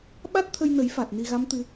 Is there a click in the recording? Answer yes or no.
no